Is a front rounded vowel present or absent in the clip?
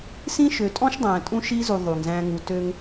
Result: present